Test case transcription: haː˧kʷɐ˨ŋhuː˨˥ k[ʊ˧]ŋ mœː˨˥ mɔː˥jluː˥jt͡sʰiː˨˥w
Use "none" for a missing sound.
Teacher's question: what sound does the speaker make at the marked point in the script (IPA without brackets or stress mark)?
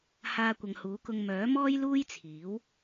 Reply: ʊ˧